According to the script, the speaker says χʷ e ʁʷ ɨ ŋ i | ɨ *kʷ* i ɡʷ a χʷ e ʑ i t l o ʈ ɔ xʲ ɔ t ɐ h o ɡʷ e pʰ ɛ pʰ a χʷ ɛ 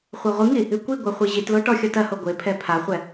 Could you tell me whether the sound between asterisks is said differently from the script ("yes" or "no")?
no